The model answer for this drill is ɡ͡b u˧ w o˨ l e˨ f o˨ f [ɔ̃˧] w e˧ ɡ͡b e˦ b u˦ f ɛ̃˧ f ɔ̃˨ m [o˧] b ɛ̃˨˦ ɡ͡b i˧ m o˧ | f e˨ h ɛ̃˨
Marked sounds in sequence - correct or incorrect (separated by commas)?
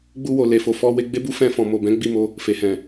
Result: incorrect, incorrect